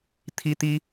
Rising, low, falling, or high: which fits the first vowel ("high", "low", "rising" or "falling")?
high